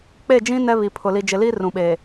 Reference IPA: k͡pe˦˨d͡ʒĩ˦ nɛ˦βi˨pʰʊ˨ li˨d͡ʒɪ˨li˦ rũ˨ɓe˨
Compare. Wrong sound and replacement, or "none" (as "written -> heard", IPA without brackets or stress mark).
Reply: none